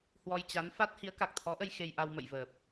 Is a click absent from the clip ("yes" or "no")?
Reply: yes